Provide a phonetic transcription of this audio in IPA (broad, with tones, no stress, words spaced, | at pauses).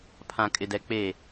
pʰã˨kʼɪ˨dɛ˨ k͡peː˨